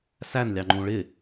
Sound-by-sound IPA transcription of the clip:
s æ n lʲ ɑ ŋ͡ǃ ũ ɭ ɪ

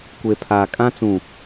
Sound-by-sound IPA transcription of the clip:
kʷ e˨ pʰ aː˨ kʼ ã˦ t͡s ũ˨

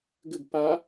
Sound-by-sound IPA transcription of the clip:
ɡ ɘ ɡ p a

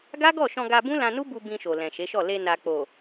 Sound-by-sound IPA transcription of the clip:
ɡ a˦ ɡ ɔ˦˨ ʃ ɔ̃˧ ɡ a˧ b ũ˦ l ã˧ n u˦ b u˧ b ĩ˧ ʃ o˨ l ɛ̃˨ ʃ e˨˦ ʃ ɔ˦˨ l e˧ n a˨ k͡p o˨

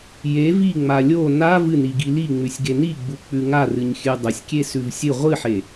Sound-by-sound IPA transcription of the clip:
j e v i ŋ͡m a lʲ o n a v ɨ n i ɡ i l i ŋ͡m ʉ sʲ ɡ e n i ɡ͡b u k͡p ʉ ŋ a r ɨ ɲ xʲ ʉ dˤ ɐ sʲ kʲ e s ʉ v sʲ ɨ ʁʷ ɨ ħ e

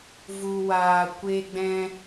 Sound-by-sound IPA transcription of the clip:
v u˧ w aː˧ kʷ e˧ ɡ͡b ɛ̃˧

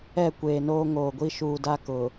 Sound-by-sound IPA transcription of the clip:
ɛ˦˨ kʷ eː˨ n oː˦ ŋ oː˨ ɡʷ i˦ ʃ uː˨ d a˦ k ʊ˨

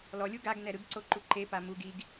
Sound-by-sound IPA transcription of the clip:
l ɔ lʲ u ɡ a ɡ n ɛ ɾ ɯ ɡ ǀ o ǃ u ǃ e p a m u ɡ i ɡ

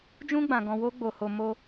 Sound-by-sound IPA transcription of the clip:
d͡ʒ ũ˦ ɡ͡b ã˧ ɡ ɔ̃˧ w o˦ ɡ͡b o˧ h o˧ m o˧

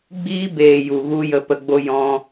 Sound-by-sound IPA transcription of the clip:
ɡ͡b iː˧ b eː˨ j u˨ ɣ u˦ j ə˧ p ə˧ ɡ͡b o˦ j ɔ̃˧

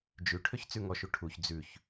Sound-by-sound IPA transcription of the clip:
d͡ʒ ʉ ʈʰ ø ç t͡s ʉ ŋ ɔ ʃ u ʈʰ u ç d͡z ʉ ç

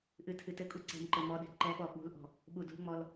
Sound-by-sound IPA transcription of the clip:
ʔ ɨ tʰ ɨ t ɘ kʼ u ǀ ɛ̤ m ǃ ɘ m ɔ ɗ ɛ̤ ǃ ɛ ɓ ɔ ɓ ṳ l ʔ ɔ̤ | ɓ u d ṳ ŋ͡m ɔ l

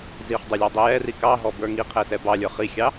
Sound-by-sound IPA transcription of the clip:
z i χ dˤ ɛ lʲ ɑ dˤ i j ɛ r i k ɑ ɦ ɔ b ə˞ ŋ i qʰ ɛ s ɛ b ɑ lʲ ə˞ χ i xʲ ɑ

